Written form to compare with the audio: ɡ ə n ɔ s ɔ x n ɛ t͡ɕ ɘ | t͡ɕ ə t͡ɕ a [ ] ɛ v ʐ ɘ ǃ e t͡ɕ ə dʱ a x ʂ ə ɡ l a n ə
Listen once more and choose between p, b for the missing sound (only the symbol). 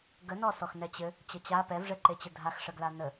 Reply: p